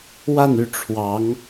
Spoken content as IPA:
wa˥˧ny˥˩ ʈ͡ʂʰwɑ˧˥ŋ

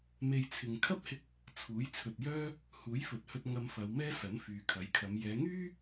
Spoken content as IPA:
me˧jt͡sʰɪ˨ŋ kʰɐ˥p̚hɪ˧k̚ | t͡sʰuː˨˥jt͡sʰɵ˨t̚jœː˥ | huː˨˥jfɵ˨t̚hɵ˧t̚ ŋɐ˧mfɐ˨˧wmɛː˥ sɐ˨˥nfyː˨kʰɐ˨˥jkʰɐ˨˧m jɛː˨˧ŋyː˥

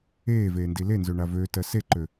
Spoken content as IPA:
eːveːndi lenzøɳa vøːtɜ seǃø

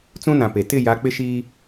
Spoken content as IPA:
t͡sũ˦nã˨pe˨ tɪ˦˨ja˨˦ k͡pɪ˦ʃiː˦

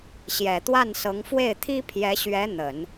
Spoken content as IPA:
ɕjɛ˨˩t̪wa˥˩nsɤ˧˥ŋ fwe˥˩ɪ̯t̪ʰi˥ pʰjɛ˧˥ɕɥɛ˧˥ n̪ə˨˩˦n

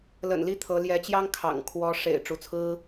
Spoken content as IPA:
lə̰˨˩nli˥˩ t̪ʰɤ˧˥ ljɛ˧˥t͡ɕjɑ˥ŋ kʰɑ̰˨˩ŋ kʰwɔ˧˥ ʂḛ˨˩ɪ̯ ʈ͡ʂu˧˥t͡sʰɹ̩˥

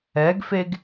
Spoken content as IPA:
ɛɡfeɡ

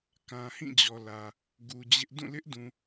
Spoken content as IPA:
kã˨hĩ˦˨d͡ʑɔ˨ lä˨ | ɡu˨d͡ʑɪ˦ʔ dũ˦˨lɪ˦ʔdũ˨

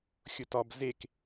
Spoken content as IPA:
xʲʊtɒb zek

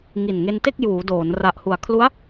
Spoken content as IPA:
ŋi˨˩nŋe˧nte˥˩k̚ juː˩˦doː˩˦n ra˨˩ʔhu˩˦a̯kʰlu˦˥a̯

